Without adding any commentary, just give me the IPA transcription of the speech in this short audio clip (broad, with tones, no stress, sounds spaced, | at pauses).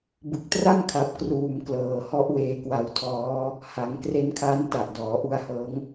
b ɯ˨˩ k̚ t r a˥˩ m kʰ a˨˩ p̚ k r uː˨˩ m k l ɤː˩˦ h ɔ˦˥ ʔ w eː˧ k w a˧ w tʰ ɔː˦˥ | h a˩˦ ŋ k r e˦˥ n kʰ a˦˥ n t a˨˩ ʔ d ɔː˩˦ ʔ u˧ a̯ h ɤː˦˥ ŋ